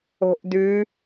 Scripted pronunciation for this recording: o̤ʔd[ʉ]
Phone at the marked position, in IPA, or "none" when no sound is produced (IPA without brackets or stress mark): ʉ